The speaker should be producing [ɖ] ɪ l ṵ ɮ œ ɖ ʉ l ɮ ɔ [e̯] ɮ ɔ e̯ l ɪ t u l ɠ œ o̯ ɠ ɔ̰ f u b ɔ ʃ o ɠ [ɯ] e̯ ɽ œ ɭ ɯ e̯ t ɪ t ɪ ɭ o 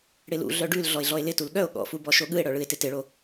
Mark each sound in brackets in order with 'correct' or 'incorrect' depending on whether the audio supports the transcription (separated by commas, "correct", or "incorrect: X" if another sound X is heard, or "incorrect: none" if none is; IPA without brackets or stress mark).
incorrect: ɽ, correct, correct